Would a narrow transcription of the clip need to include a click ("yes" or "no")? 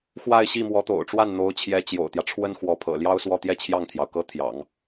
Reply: no